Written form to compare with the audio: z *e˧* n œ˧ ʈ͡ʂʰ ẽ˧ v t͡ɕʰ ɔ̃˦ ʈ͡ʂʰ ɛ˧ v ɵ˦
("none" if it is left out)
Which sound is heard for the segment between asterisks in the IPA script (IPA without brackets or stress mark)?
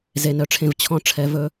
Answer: e˧